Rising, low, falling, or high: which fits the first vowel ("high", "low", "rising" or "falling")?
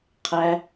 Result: low